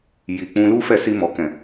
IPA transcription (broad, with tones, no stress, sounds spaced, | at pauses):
j i˨ k͡p ũ˧ l u˦ f ɛ˦˨ s i˧ m ɔ˨ k ɛ̃˨